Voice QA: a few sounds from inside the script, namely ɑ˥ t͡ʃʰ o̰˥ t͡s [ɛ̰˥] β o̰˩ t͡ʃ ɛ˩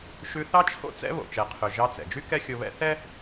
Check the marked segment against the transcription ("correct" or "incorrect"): correct